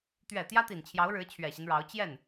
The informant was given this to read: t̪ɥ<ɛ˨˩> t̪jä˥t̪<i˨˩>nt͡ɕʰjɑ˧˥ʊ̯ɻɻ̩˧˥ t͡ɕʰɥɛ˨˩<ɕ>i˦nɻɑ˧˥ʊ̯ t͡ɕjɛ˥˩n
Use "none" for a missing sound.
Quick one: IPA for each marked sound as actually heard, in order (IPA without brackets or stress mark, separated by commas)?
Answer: ɛ˨˩, i˨˩, ɕ